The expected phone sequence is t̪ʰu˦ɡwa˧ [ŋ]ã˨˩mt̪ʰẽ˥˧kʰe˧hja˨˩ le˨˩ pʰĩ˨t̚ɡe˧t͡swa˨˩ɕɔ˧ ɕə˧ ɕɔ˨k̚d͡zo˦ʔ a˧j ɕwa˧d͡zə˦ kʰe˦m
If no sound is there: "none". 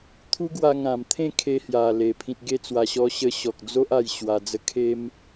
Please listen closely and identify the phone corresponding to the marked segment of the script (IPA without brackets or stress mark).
ŋ